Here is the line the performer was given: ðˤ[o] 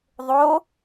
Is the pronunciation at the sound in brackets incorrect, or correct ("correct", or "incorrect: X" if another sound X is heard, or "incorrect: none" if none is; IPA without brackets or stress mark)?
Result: correct